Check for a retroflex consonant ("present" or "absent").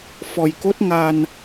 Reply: absent